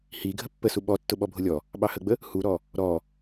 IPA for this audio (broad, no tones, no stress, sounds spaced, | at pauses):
h i ɡʱ ə pː ə s u ɓ ɔ tː ʊ ɓ ɔ bʱ ʊ lʲ ɔ | ɓ ɑ h ə ɡ͡b ə | h u ɾ ɔ | ɾ ɔ